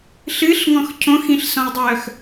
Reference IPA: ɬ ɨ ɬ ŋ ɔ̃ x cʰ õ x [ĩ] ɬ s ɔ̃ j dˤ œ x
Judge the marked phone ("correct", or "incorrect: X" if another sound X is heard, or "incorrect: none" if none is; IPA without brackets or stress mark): correct